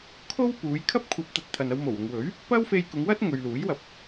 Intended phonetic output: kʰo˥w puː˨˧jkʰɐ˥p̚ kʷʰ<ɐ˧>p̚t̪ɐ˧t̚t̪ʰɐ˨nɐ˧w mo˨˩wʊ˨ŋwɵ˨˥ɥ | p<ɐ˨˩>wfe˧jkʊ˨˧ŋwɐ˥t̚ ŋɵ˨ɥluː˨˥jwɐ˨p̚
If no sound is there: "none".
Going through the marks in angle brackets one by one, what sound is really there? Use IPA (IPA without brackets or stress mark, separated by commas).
ɐ˧, ɐ˥